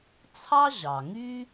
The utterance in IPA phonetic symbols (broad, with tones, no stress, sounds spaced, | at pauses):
t͡sʰ ɑ˥ ʑ ɑ˩ ŋ y˥